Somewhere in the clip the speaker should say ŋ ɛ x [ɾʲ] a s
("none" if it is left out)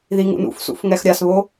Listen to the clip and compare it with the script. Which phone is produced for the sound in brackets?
ɾʲ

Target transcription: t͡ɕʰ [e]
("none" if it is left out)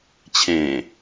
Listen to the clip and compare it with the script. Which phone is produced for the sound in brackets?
ẽ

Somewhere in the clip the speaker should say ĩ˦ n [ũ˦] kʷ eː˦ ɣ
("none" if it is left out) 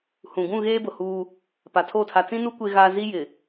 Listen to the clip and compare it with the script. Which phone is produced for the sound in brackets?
u˦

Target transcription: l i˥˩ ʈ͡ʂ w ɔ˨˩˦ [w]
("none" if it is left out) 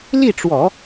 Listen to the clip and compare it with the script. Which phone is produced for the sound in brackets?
none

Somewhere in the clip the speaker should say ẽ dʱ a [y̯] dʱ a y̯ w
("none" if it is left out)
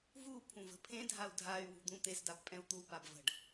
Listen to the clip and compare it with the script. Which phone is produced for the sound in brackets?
u̯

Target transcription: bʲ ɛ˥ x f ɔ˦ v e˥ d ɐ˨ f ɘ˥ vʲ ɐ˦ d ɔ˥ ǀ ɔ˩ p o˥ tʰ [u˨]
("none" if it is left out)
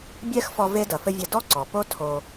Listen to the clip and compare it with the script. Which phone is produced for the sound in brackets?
o˨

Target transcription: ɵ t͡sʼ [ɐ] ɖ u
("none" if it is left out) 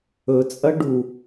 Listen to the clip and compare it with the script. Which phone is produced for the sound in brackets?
ɐ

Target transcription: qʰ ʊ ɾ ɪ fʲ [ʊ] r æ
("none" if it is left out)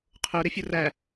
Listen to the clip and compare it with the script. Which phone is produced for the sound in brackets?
ʊ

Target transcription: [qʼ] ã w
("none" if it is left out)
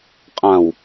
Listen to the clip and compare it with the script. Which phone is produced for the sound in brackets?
qʼ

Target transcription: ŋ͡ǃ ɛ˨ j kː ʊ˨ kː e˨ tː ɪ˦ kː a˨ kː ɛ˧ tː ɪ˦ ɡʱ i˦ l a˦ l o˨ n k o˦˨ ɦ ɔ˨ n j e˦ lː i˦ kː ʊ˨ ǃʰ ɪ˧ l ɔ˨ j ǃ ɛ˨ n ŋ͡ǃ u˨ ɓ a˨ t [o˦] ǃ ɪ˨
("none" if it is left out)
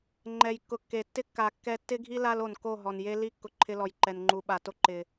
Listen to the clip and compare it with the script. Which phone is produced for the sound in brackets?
o˦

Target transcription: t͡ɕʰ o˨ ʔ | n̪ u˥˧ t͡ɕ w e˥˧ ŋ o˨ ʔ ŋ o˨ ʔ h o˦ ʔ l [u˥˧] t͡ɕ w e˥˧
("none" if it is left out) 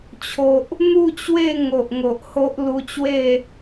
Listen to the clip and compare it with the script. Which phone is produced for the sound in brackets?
u˧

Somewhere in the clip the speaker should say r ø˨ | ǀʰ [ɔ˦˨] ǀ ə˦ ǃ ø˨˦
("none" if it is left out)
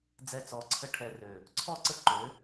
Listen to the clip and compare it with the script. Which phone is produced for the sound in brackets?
ɔ˦˨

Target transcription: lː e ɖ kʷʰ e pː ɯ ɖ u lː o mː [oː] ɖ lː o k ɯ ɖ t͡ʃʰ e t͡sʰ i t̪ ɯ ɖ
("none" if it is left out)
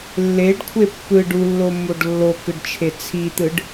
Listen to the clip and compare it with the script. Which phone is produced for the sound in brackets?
o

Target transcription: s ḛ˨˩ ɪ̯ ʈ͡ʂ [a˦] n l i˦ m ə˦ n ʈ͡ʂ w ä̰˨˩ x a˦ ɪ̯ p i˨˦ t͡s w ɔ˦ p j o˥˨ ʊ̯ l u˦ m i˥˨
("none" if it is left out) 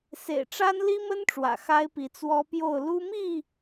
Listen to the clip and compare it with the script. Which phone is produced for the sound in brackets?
a˦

